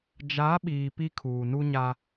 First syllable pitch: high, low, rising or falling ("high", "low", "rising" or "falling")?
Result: rising